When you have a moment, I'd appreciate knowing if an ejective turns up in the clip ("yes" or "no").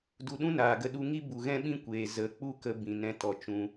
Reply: no